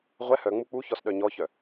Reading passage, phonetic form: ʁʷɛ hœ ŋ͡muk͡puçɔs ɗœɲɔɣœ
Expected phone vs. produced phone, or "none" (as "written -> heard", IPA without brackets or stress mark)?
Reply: ɣ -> ç